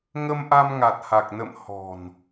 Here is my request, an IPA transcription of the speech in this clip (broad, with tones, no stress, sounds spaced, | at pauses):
ŋ ə˧ m ʔ a˧ m ŋ a˨˩ t̚ h a˨˩ k̚ n ə̰˧˨ m h ɔ̤˨˩ n